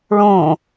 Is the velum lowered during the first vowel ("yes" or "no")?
yes